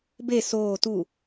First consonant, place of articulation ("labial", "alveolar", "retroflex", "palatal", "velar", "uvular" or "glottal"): labial